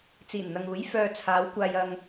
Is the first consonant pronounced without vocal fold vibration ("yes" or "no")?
yes